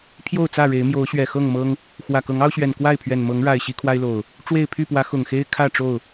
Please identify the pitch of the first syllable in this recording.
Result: falling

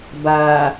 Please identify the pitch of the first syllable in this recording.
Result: low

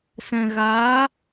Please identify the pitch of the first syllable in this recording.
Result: low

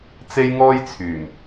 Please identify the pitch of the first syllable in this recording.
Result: high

